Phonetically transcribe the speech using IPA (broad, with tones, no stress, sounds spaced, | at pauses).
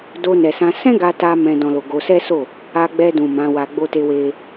d o˧ n ɛ˨ s ã˧ s ɛ̃˦ ɡ a˧ t a˧ m ɛ̃˧ d ɔ̃˨ l o˨ ɡ o˧ s ɛ˦ s o˦˨ | a˧ ɡ͡b ɛ˧ d ũ˨ m ã˨˦ w a˧ ɡ͡b o˦ t e˦ w e˦